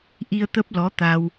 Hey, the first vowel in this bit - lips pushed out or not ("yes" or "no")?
no